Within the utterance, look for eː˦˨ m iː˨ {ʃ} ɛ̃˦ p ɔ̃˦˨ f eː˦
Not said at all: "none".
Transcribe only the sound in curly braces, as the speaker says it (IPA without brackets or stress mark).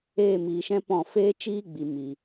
ʃ